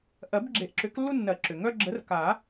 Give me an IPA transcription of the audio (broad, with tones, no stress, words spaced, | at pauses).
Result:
ʔɜ˨˩˦bɡ͡ǁe˨˩˦ʔǁʏ˨˩˦klːu˦ nːɜ˨˩˦ǁʏ˩ŋœ˦ ɡ͡ǁə˨˥rka˨˩˦